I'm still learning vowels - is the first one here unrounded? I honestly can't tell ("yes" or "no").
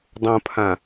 no